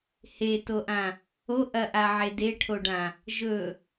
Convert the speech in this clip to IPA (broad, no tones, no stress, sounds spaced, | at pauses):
h e t o ʔ ã | o ʔ ɐ ʔ a ʕ e d e ʈʰ o ɖ ã | ʒ ɵ